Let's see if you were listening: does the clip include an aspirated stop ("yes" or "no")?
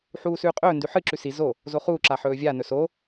no